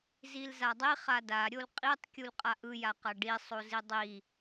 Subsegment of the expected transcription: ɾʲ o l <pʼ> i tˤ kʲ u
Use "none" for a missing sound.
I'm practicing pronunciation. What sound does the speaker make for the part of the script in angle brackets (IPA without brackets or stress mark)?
qʼ